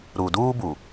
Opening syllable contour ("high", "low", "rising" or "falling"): low